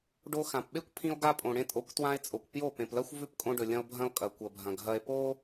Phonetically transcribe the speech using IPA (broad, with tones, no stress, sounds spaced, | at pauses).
ɖ o˧ x ã˨ p ɓ e˦ kʷ pʰ ĩ˧ o̯ ɡ a˧ pʼ õ˨ ɽ ẽ˧ tʼ o˨˦ kʷ t w ã˧ e̯ t͡sʼ o˨ kʷ p j o˦˨ p ẽ˨ p l ɐ˦ xʷ v ʉ˦˨ p kʼ õ˧ ɖ ɵ˨ lʲ ɐ̃˧ o̯ bʱ ɐ̃˧ o̯ kʼ ɐ˨ kʷ ɐ˨ bʱ ɐ̃˨ ɡʱ ɐ˧ e̯ p o˦